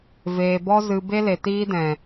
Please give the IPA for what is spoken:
v eː˨ b ɔ˦ z ɨ˨ b e˦ l e˨ t iː˦ d ɛ̃˨

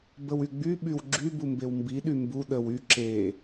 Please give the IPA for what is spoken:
b ə w y ɡ͡b y ɓ y w ɡ͡ǁ y b u m b e w m b i ɗ y m b u ɗ ə w y ǁ e

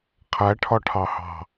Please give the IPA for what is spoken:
qʰ æ ʈʰ ɒ ʈʰ ɑ h ɑ̤

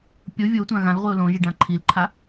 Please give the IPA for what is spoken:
pʲ o vʲ o tʷ ã ɣ ã l ʁʷ i ʊ̯ l õ ʒ i ɖ ã ǃʰ i l ǃʰ a

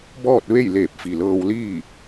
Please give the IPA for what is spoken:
b ɔː˥˨ t̚ ʋ e˥˨ j l eː˧˩ p̚ f i˩ l ɤː˧ w l iː˥˨

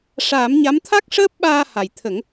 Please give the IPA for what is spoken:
ʂ aː˨˩˦ m ɲ a˧˥ m t̪ʰ a˦˥ k̚ ʂ əː˦˥ p̚ ɓ aː˧ h a˨˩ j t̪ʰ ə˨˩˦ ŋ

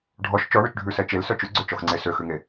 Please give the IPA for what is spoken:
ɖʱ ɔ ʃ t͡ʃ ɔ ɳ ɵ t͡ʃ ɖʱ ʉ s ɛ t͡ʃ e l s œ t͡ʃ ʉ ɡ͡ǀ ø t͡ʃ ɔ x ŋ͡ǀ e s ø x ʉ ŋ e

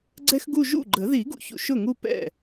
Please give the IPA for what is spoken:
ɡ͡ǀ ɛ˥ x ɡ u˥˧ ʒ ṵ˥˩ ɡ͡ǃ ə˨˩˦ ð i˨˩˦ ɡ ṵ˨ ç ṵ˨ ʃ ʊ˥˩ ŋ u˥˧ p ɛ̰˥˩

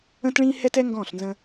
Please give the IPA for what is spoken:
ə̃˥ t ɭ ĩː˥ h ɛ˥ t ɛ˥ ŋ ɡ ɔ̃ː˥˩ ɬ n z ə̃˧

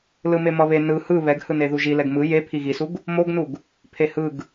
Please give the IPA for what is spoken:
l ɯ m e m ʌ β e n ɯ h ɯ β ɛ ɡ h ɯ n e ð u ʒ i l ɛ ɡ m ɯ j e pʰ i ɣ i s u ɡ | m o ɡ n u ɡ | pʰ e h ɯ ɡ

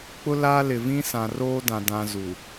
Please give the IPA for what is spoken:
k͡p ʊ˦ l aː˦ l ɪ˨ v ĩ˦ s ã˨ r oː˦ d ã˨ d ã˨ z u˨

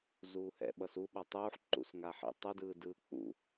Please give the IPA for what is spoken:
z uː h ɛ̰ ɓ ʌ s u ɓ a tˤ uː ħ ǃ ṵ s ŋ a ħ ḭ tˤ u d ɯː d ɯː k͡p ṵ

